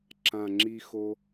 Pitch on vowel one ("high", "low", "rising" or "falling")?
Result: low